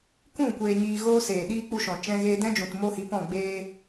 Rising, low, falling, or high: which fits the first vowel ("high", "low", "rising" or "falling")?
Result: falling